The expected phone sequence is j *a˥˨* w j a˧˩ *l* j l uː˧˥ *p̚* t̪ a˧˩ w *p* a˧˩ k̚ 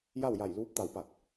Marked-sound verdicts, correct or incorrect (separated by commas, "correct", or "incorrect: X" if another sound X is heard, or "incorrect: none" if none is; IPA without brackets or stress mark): correct, incorrect: none, correct, correct